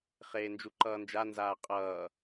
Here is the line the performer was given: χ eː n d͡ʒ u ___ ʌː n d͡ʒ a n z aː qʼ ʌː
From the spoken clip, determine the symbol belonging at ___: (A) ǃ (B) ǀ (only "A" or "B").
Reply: A